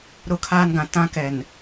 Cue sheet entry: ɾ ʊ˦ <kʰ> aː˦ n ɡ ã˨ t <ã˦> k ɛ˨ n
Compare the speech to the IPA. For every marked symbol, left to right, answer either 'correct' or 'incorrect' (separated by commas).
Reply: correct, correct